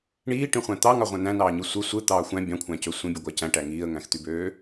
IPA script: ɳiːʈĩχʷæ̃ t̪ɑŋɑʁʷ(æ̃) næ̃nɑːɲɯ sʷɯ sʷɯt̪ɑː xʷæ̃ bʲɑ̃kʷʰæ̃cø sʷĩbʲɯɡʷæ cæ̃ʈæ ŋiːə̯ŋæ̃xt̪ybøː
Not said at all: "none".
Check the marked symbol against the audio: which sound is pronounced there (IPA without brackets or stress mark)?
æ̃